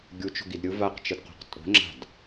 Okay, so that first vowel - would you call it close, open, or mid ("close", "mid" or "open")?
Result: close